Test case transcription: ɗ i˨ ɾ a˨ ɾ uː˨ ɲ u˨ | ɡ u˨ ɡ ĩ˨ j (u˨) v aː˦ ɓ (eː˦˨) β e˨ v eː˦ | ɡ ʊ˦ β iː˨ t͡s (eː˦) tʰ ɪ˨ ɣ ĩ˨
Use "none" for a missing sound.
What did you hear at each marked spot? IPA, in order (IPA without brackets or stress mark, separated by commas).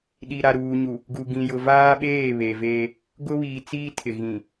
ʊ˨, eː˦˨, iː˦